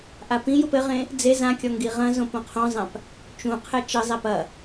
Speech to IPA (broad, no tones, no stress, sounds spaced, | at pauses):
ʔ a p ĩ j u p ɘ ʁ ẽ | d͡z e z ã kʲ ɔ ŋ ɡ i ʁ ɐ̃ z õ p õ qʰ õ zˤ ã p | t͡ʃ ũ qʰ ɛ t͡ʃ ɘ zˤ ɛ p ɐ